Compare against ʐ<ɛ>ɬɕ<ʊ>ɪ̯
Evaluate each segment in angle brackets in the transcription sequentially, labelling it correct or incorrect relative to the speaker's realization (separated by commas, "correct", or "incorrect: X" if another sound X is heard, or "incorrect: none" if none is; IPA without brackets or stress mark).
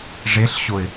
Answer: incorrect: e, correct